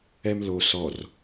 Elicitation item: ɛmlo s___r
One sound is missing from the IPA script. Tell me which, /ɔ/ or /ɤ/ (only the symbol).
ɔ